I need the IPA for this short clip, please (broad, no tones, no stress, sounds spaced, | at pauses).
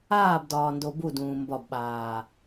aː b d ɒː n d o b u d ũː m b ɒ b ɓ aː